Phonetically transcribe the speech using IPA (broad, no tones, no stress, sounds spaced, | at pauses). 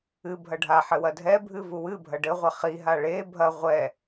ɨ bʱ ɐ ɖʱ a ħ ɘ w ɐ dʱ ɛ bʱ ɨ v u w ɨ bʱ ɐ ɖ ɘ ʁʷ ɐ χ i ɦ a ɭ e bʱ ɐ ʁʷ ɛ